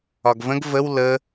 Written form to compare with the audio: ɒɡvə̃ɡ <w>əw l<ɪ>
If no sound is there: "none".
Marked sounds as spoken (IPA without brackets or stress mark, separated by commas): v, ə